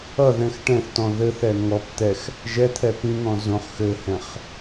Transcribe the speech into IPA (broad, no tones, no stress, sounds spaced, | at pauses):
ʌ ð ɛ̃ x ʈ ɛ̃ θ t ɔ̃ ð ɘ θ ɛ ŋ ɔ p t̪ ɛ x | ʒ ɛ t̪ʰ ɛ p ĩ ŋ ɔ̃ z õ χ x ɘ h ɛ̃ χ